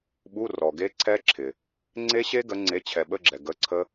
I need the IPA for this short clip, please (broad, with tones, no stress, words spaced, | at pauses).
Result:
ɓu˧˥˧rɔ˨ɡe˦˥ ǀʰɛ˦˥ǁʰɪ˨ | ŋ͡ǀe˦˥ɕe˦˥ ɡə˨˥ ŋ͡ǀe˨˥t͡ɕʰɛ˨ɓə˧˥˧ ɡ͡ǁɛ˨ ɡə˧˥˧ǀʰə˦˥